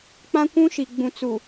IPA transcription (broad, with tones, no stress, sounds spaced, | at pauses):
k͡p ã˦ kʷ ũ˦ ʃ i˨ ɡ͡b ũ˨ t͡s u˨